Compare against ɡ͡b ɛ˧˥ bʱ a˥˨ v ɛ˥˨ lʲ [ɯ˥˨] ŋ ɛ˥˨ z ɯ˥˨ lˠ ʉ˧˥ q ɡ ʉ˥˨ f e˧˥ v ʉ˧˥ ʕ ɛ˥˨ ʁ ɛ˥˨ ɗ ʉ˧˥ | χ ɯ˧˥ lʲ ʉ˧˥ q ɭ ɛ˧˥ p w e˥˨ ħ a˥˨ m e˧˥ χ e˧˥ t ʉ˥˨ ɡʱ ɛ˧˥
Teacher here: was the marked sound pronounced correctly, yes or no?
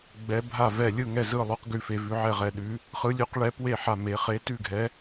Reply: yes